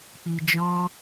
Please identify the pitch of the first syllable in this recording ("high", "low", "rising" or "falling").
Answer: low